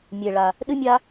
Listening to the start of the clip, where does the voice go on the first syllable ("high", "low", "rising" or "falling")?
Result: low